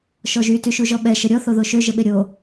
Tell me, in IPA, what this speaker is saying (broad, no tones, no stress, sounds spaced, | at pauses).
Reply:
ʃ ɔ ʒ y t y ʃ u ʒ ɔ ɓ ɛ ʃ ə ɾʲ ɔ θ o ð o ʃ ø ʒ ə ɓ e ɾʲ o